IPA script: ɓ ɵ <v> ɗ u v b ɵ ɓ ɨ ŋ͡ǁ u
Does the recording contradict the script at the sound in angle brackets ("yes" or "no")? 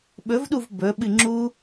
no